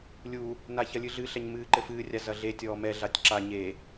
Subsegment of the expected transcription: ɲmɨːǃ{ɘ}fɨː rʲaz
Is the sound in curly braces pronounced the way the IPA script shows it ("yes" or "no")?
yes